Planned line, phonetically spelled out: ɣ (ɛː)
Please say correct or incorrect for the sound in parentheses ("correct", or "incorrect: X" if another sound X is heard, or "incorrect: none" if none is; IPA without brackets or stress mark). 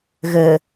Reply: incorrect: əː